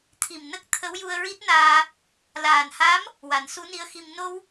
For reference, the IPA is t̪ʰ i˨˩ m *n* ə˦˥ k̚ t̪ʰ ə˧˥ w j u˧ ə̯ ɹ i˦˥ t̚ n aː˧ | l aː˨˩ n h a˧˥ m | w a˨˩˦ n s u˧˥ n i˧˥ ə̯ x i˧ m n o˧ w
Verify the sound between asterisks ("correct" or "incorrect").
correct